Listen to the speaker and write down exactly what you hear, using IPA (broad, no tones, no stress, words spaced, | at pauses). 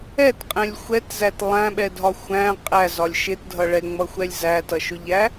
ɛtqʼɛ̃lʲ xʷɛtzæt lˠæ̃ɓɛdʱɒ xʷæ̃ qʼæzɒlʲ ʃɪtdʱʌ ɭɛŋ͡mʌxʷɛlʲ zætʌʃʊʎæ